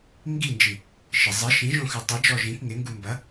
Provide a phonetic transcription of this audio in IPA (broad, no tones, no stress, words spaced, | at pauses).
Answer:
ŋɡind͡ʒi | ʃɪ zˤɪ ʃĩʒõxʉ tˤid͡ʒɔ ʒĩk ŋɪŋɡu mbɐ